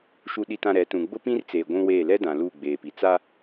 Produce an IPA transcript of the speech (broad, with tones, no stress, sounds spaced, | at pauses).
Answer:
ʃ u˨ ɗ i˨ t ã˨ ɾ ɛ˨˦ t ũ˨ ɡ͡b ʊ˦ p ĩ˦ r t͡s eː˨ ɡʷ ũ˦ w eː˦˨ l ɛ˦ d ã˨ l uː˦˨ ɡ͡b eː˨ p i˨ t͡s a˦